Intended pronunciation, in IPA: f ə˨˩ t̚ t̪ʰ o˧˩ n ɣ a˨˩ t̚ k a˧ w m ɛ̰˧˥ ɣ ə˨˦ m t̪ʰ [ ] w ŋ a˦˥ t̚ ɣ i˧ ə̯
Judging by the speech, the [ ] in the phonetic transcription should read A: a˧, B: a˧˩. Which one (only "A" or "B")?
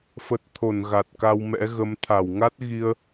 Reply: B